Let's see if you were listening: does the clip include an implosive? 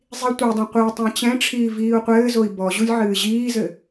no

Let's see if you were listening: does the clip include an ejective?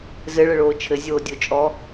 yes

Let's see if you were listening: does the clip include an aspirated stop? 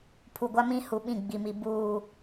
yes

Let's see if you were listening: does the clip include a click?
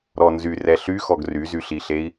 no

